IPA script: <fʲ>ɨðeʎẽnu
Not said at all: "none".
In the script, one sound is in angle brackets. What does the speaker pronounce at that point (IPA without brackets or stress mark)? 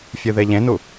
fʲ